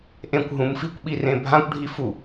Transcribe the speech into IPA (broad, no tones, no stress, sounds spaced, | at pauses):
ʔ ẽ kʷ ɦ ũ m f i kʷ ɓ i r ẽ bʱ ã kʷ ɖʱ i f u